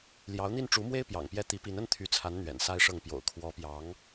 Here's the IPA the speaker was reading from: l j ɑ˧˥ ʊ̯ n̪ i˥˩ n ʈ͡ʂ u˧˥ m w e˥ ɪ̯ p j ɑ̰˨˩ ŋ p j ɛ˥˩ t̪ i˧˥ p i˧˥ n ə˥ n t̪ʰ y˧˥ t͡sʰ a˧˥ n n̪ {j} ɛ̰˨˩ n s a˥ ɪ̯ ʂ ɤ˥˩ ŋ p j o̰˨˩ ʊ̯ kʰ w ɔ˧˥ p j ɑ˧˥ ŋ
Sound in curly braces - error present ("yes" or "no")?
yes